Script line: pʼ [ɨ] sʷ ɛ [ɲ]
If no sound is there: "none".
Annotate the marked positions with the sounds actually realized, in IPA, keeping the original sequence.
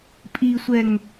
i, ŋ

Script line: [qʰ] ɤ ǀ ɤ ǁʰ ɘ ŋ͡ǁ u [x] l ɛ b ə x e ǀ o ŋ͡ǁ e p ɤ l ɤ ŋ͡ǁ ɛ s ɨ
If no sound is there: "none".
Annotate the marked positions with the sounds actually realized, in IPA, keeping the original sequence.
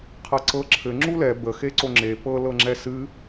qʰ, none

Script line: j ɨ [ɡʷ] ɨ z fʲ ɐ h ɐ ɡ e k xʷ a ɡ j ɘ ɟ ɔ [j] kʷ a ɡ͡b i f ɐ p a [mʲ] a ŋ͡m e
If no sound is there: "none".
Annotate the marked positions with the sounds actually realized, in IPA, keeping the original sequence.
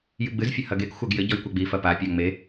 ɡ͡b, j, pʲ

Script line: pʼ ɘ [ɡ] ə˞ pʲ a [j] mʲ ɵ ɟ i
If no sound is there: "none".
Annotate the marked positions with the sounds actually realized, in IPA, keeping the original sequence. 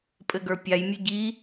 ɡ, j

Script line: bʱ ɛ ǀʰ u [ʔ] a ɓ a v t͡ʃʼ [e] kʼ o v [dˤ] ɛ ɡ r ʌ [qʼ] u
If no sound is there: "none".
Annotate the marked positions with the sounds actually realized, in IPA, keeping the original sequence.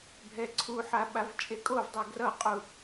ħ, e, dˤ, qʼ

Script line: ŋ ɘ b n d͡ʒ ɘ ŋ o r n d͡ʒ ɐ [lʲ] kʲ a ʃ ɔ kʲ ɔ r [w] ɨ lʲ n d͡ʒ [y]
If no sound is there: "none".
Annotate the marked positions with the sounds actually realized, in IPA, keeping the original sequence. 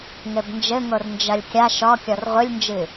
lʲ, ʁʷ, ɨ

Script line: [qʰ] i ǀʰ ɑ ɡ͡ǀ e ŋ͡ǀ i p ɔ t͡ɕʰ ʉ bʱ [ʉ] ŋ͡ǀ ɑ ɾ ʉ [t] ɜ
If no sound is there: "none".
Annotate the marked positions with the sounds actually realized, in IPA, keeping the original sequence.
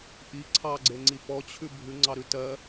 ʔ, ʉ, t

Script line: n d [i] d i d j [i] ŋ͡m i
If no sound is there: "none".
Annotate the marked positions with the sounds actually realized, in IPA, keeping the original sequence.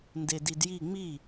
e, i

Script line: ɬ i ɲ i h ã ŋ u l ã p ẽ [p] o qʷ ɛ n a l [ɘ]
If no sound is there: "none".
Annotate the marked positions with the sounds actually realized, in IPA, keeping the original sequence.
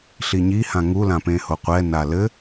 h, ɘ

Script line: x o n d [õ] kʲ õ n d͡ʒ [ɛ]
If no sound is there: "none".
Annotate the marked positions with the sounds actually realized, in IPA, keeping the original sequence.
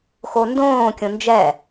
õː, ɛ

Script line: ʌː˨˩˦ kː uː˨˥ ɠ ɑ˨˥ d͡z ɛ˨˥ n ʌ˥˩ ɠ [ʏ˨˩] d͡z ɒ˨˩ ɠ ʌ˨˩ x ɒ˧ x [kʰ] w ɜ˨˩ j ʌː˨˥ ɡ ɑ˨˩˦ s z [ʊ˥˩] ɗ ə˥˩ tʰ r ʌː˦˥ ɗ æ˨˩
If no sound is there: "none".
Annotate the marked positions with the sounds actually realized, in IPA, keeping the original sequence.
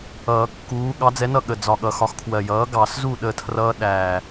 ə˨˩, kʰ, u˥˩

